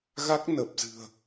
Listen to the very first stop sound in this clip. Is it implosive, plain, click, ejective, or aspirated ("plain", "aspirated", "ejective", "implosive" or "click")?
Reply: plain